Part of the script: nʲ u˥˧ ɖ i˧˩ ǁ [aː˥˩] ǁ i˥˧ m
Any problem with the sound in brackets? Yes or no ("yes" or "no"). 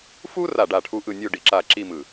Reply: yes